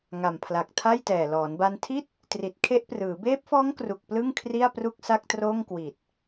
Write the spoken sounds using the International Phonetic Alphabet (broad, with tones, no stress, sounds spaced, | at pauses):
ŋ a˨˩ m pʰ l a˨˩ k̚ tʰ a˥˩ j t ɛː˨˩ l ɔː˩˦ n b a˧ n tʰ i˥˩ t̚ | t r i˨˩ t̚ kʰ e˦˥ ʔ p r ɯː˩˦ b eː˦˥ p̚ f ɔː˦˥ ŋ k r u˨˩ k̚ p l ɯ˥˩ ŋ kʰ r i˥˩ a̯ p r u˥˩ k̚ s a˥˩ k̚ t r oː˥˩ ŋ k w i˨˩ t̚